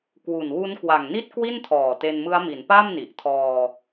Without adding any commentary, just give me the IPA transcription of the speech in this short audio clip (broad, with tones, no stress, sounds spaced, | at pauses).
k w u˨˩ n w u˦˥ n k w a˨˩ ŋ n i˥˩ t̚ k w i˥˩ n tʰ ɔː˨˩ t e˧ n m ɯ˦˥ a̯ m i˩˦ n p a˥˩ m n i˨˩ ʔ tʰ ɔː˧